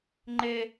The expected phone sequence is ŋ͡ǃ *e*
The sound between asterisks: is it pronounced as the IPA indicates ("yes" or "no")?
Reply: yes